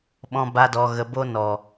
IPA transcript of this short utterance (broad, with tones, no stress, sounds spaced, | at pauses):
ɓ ɔ̃˧ b a˧ d ɔ˨ ɣ ə˨ b o˧ n ɔ˨